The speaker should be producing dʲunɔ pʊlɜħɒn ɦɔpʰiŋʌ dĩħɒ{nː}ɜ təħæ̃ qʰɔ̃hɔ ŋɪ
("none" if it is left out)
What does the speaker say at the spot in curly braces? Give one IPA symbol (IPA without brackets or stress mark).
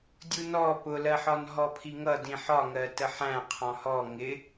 ŋ